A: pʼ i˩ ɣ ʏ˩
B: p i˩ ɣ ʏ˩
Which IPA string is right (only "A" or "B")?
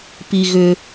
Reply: B